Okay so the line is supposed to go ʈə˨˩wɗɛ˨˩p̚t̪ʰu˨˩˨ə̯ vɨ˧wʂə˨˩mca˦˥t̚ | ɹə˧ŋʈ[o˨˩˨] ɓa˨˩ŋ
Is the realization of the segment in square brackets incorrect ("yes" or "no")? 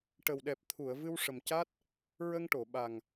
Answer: no